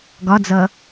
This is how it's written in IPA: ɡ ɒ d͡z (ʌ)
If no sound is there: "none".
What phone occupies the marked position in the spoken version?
ʌ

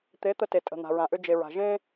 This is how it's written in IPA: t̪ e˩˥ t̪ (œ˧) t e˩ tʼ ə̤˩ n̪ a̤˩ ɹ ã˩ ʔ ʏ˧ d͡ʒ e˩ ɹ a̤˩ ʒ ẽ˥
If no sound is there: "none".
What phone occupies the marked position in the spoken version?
ə˧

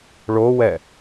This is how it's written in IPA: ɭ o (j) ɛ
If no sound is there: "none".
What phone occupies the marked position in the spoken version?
w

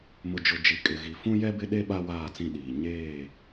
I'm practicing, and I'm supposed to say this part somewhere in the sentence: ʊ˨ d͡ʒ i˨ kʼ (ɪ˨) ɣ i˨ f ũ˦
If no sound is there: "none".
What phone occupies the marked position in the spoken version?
ɪ˨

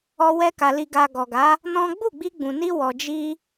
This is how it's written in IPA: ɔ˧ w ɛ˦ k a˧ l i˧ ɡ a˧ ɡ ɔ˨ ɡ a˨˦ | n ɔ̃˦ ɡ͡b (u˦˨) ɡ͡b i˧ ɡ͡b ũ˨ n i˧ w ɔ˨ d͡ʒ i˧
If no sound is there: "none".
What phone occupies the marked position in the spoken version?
u˦˨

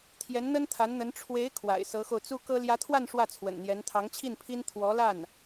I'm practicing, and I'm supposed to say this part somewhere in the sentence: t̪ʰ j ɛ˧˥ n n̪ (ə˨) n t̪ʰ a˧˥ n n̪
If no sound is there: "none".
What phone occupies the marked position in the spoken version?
ə˥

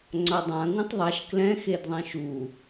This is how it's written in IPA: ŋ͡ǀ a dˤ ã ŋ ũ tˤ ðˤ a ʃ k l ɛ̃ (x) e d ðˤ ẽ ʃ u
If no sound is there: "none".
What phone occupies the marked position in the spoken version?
x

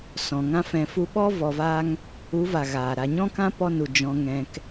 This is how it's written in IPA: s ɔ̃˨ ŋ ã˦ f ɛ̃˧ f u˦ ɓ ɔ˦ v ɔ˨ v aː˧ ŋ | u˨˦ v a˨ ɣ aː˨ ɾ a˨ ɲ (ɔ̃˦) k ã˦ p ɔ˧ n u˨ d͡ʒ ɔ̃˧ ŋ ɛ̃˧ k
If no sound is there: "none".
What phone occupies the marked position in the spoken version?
ɔ̃˦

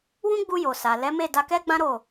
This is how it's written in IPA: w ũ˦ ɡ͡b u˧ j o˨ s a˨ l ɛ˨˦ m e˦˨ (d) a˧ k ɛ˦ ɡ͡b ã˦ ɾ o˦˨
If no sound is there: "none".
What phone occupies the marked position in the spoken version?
d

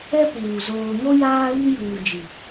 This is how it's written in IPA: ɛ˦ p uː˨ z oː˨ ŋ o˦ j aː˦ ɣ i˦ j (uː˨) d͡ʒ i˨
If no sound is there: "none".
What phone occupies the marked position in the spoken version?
uː˨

